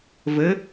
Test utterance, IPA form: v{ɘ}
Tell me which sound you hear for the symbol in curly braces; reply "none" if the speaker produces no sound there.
ɘ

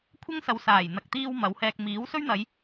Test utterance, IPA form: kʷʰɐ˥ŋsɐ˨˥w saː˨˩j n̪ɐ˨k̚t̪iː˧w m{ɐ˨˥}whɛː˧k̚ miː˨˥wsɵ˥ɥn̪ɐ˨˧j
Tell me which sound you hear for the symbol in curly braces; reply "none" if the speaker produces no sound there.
ɐ˨˥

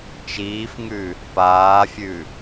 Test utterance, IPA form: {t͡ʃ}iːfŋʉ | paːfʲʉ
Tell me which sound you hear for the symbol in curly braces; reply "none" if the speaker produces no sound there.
t͡ʃ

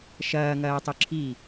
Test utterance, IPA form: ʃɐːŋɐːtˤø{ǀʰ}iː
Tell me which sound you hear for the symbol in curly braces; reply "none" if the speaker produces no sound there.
ǁʰ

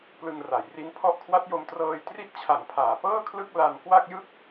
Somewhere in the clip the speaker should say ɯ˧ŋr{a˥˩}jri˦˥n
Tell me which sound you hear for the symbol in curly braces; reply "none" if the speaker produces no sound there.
a˩˦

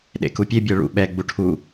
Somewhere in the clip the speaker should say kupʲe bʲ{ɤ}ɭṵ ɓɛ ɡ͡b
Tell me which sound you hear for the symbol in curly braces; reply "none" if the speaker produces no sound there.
ɤ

